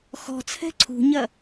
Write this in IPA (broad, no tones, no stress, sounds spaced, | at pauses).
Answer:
x ɔ̤ t͡sʰ ɛ̤ ǀʰ ṳ ɲ ɐ